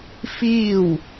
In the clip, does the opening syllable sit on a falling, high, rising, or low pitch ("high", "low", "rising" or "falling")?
falling